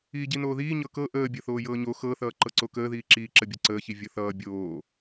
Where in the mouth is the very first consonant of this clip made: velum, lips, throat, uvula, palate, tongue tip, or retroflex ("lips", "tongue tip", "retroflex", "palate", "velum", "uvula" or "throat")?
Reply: palate